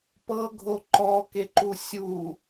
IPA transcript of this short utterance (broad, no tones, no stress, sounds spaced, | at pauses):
p ɤ ɡʱ o ǃ ɔ k e ǃ u sʲ u